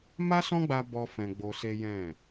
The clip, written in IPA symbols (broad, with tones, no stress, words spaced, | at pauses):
ma˦sɔ̃˦ɡ͡ba˧ bɔ˦fɛ̃˧ ɡ͡bo˧se˦ jɛ̃˦˨